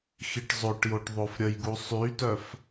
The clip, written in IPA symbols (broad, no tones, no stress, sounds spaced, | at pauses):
x i ʈ zˤ o ʈ j o ʈ ðˤ o f ɾʲ ə j ɡ u sˤ y t œ f